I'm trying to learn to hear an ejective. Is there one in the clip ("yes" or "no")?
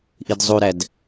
no